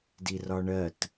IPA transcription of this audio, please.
d i r ɒ ɳ ɜ t

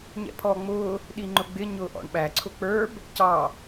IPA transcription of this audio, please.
ɲ ɛ̰ pʰ ɔː ŋ͡m ʊː | ɗ i ŋ͡ǃ ʊ ɡ͡b ɪ ɲ ʊː ʔ ɔ̰ ɳ ɓ æ ǀʰ ʊ k͡p ə˞ b | c ɑ

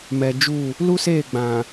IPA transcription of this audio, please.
m ɛ˨ d͡ʒ u˦˨ | l u˦ s eː˦˨ ɡ͡b ã˨

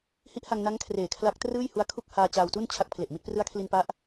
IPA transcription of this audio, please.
h i˦˥ ʔ h a˧ ŋ n a˦˥ ŋ kʰ r eː˨˩ kʰ l a˦˥ k̚ t r ɯː˥˩ j h u˦˥ a̯ kʰ u˥˩ k̚ h aː˧ t͡ɕ aː˧ w t u˥˩ n t͡ɕʰ a˦˥ k̚ pʰ l e˨˩ ʔ m i˥˩ t̚ p r ɯ˦˥ a̯ kʰ l i˧ n p a˦˥ ʔ

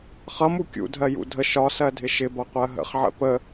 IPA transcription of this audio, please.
χ ʌ m u kʲ ṵ dʱ ɜ j ṵ dʱ ə ʃ ɒ s ɜ dʱ ɪ ʃ ɪ b ʌ qʷ ɜ ɦ ə̰ χ ʕ ə̰ p ə

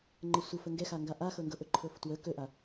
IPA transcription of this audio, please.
ŋ͡ǃ ə sʷ ə f ə ŋ ɡ ɛ x a ŋ ɡ a ʔ a x ɤ ŋ ɡ ɤ ʔ ɵ ǃʰ ɤ f t w ə k ɵ ʔ a

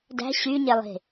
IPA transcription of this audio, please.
d æ̤ ɕ y ɲ e lˠ e̤

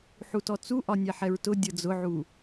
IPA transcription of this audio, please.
ħ u t ɔ t͡s u ʔ ɒ nʲ ɛ ħ ɛ ɹ t ʊ dʲ ɤ d͡z ʊ ʕ u

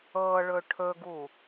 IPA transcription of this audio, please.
ɤ ɭ ɵ ʈʰ ɵ ɡ u

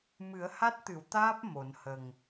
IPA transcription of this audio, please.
m ɨ˨˩˦ ə̯ h a˦˥ t̚ t̪ ɨ˨˩˨ w t̪ aː˦˥ p̚ m o˨˩˦ n h ə˨˩ ŋ

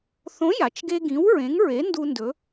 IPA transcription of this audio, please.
θ õ˨˥ j a˩ t͡ʃ ɡ e˦ ɡ ĩ˨˥ w ɹ ẽ˨˥ ŋ ɹ e˨˥ n d u˦ n d ɵ˨˥

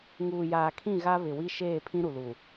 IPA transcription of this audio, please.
ŋ uː˨ j aː˨ kʰ ĩ˦˨ ɣ a˦ β ɪ˨ w i˦ ʃ eː˦˨ pʰ ĩ˦ ɾ u˨ l u˨

